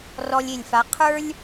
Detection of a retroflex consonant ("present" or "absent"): absent